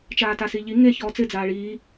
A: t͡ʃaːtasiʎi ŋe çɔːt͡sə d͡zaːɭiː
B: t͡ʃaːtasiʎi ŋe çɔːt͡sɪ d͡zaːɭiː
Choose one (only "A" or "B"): B